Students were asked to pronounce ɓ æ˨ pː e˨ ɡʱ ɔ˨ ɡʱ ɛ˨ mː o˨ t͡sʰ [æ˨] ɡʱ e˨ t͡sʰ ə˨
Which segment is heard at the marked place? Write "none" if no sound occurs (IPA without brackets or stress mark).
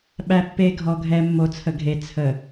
ə˨